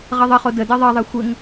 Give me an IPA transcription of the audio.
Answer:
ʁ ʌ ðˤ ʌ χ o d ə d ɜ ðˤ ɜ ðˤ ɜ xʷ ɘ ŋ

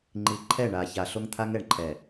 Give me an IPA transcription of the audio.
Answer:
ŋ͡ǃ i˨ ǃʰ ɛ˦˨ ɳ a˨ ç a˨ ɬ o˦ ŋ t̪ʰ a˦ ŋ ɛ˨ ɳ ǃʰ ɛ˨

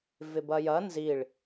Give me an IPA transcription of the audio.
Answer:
v ɪ b ɐ j ɐ n z i ɭ

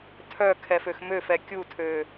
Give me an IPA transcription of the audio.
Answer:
tʰ œ kʰ ɛ f ø x m ø f ɛ kʲ u tʰ ø

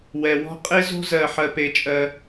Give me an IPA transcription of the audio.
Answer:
w ɛ˧ w ɔ̤˥ qʼ e˥ z o̤˥ z ɜ˧ ħ ɜ˧ p e˧ t͡ʃʼ ɜ˧

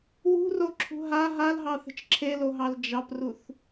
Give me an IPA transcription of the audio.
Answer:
w ṳ r o ǁʰ ṳ ɦ a ɦ a l ɦ ɑ θ ə̤ t͡ʃ ǁʰ e l o ɦ ɑ l d͡ʒ ɑ p r u θ

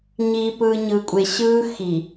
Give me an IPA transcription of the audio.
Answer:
ɲ iː˨ p ɯː˨ ɲ ɯ˨ kʷʼ e˨ ɕ ɯː˦ x i˨

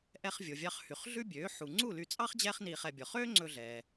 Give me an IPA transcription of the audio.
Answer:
ʔ ɛ˧ χ vʲ o˩ vʲ ɑ˧ χ h y˩ χ ɮ ʉ˥ bʲ øː˩˥ ħ u˩ ŋ͡ǀ u˥˩ l y˧ t͡sʼ ɑ˥ χ d͡ʑ ɛː˥ χ n iː˧ χ ɛ˧ bʲ ɔ˩ χ øː˥ ŋ͡ǀ ɵ˧ ɮ ɛː˩

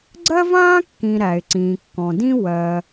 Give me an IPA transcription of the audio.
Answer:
ɡ͡ǀ ɜ˥ v ãː˥ kː ĩ˨ ɾ æ˨ ɪ̯ ǀ ĩː˨ kː ɔ̃˨ d ĩ˥ w ɜ˨

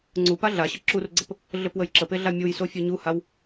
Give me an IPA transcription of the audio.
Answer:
ŋ͡ǀ u p a ɮ a ɕ ə ǁ u r ɡ͡ǀ ə p | ɮ ɘ p w ə j ǁ ə p e ɮ a mʲ u j s o fʲ ə˞ ɲ u h a w

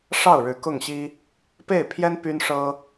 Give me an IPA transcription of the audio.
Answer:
ʂ ɑ˥˩ ʊ̯ ɻ ɻ̩˧˥ k ʊ˥˩ ŋ ɕ i˥ | p e˥˩ ɪ̯ pʰ j ɛ˥ n p y˥ n ʂ ɤ˥

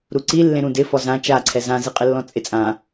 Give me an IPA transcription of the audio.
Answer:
ɾ u ǀ i lː ẽ ɾ ũ d ɪ f ɔ z ã t͡ʃ a ǀʰ ɛ z ã z i qʼ ɪ lː ɔ̃ t͡sʼ ɪ t͡sʼ ã

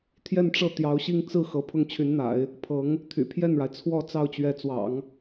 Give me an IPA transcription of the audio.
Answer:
t̪ʰ j ɛ˥˧ n ʈ͡ʂ ɤ˥˩ t̪ j ɑ˧˥ ʊ̯ ɕ i˥˧ ŋ t͡s ɹ̩˥˩ x ɤ˧˥ pʰ ʊ˥ ŋ t͡ɕʰ y˧˥ n n̪ a̰˨˩˦ ɪ̯ | pʰ ɤ˧˥ ŋ | t̪ʰ y̰˨˩ pʰ j ɛ˥˩ n ɻ a˩ ɪ̯ t͡sʰ w ɔ˥˧ t͡s ɑ˥˩ ʊ̯ t͡ɕ ɥ ɛ˧˥ t͡s w ɑ̰˨˩˦ ŋ

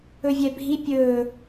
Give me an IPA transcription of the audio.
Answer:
ɵ vʲ ɛ bʱ i pʲ ɵː

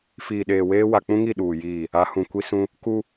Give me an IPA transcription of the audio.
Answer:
f iː˨ ɗ eː˨ w eː˦ w a˨ k͡p ũ˦ ŋ i˦˨ ɗ uː˨ j iː˦˨ | a˨˦ h ũ˨ kʷ i˦ s ũ˦ | k u˦

